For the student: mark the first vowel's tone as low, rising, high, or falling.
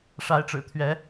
rising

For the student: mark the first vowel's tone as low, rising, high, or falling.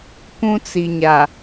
high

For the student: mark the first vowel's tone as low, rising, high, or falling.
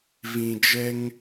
low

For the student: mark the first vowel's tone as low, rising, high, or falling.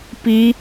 high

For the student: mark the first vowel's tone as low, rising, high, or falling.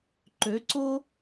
rising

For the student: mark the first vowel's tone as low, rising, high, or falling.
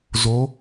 rising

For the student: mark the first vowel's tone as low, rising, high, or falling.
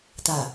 low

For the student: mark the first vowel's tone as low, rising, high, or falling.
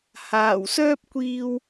low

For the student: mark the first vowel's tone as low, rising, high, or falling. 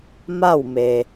falling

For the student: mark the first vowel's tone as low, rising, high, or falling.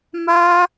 high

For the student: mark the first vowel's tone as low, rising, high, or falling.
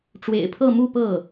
low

